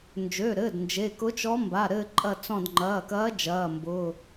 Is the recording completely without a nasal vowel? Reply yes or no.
no